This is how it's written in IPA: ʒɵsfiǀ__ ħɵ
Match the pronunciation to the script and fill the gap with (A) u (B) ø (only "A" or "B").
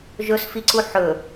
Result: A